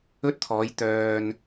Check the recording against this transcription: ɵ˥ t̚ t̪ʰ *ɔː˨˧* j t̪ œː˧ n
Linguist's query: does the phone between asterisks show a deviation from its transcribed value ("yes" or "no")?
no